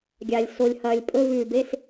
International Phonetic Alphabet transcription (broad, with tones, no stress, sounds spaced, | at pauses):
ɡʲ a˨ lʲ s o˨ lʲ h ɐː˨ lʲ pʼ ɵ˧˥˧ v ʉː˨ b e˧˥˧ s